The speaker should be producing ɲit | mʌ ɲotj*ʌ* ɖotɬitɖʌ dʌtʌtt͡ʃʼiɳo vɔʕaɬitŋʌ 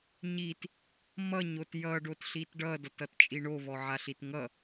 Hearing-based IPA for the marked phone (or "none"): ʌ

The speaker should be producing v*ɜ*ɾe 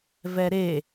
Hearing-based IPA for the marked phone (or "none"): ɛ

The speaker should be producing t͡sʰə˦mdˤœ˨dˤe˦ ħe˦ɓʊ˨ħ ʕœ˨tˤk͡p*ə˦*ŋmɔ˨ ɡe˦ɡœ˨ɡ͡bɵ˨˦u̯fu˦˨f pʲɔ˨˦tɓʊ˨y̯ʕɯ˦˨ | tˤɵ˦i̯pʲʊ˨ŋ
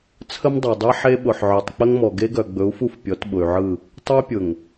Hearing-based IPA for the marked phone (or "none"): ə˦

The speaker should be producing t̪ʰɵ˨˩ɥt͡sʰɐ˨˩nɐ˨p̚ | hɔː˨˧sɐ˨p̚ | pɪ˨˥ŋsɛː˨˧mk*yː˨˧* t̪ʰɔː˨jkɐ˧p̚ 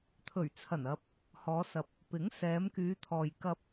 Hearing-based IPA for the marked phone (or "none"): yː˨˧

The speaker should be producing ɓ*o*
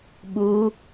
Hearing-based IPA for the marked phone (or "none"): u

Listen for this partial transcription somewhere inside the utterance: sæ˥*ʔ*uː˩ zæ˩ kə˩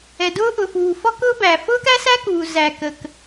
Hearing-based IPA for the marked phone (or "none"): k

